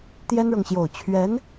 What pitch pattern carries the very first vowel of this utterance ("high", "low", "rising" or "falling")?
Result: high